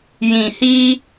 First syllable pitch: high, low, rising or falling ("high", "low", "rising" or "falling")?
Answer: low